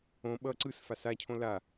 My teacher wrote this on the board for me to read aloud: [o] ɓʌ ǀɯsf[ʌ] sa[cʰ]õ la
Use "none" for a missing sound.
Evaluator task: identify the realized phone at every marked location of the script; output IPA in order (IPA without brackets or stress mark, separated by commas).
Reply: õ, a, cʰ